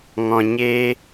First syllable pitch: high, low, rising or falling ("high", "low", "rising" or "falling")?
low